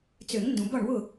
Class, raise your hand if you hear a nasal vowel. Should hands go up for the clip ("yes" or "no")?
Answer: yes